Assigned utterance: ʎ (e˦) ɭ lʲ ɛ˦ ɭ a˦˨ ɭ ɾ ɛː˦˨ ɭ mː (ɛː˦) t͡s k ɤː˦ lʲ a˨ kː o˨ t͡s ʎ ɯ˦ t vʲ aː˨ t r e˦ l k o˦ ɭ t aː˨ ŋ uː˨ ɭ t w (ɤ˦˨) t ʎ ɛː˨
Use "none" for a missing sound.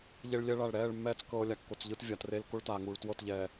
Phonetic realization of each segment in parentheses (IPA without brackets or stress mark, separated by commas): e˦, ɛː˦, ɤ˦˨